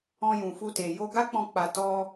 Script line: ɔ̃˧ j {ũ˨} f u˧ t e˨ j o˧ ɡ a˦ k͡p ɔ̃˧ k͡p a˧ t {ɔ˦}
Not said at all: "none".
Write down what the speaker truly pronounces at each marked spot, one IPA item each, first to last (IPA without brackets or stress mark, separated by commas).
ũ˨, ɔ˦